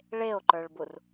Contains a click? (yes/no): yes